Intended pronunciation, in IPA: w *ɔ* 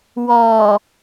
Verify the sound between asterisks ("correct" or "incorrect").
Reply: correct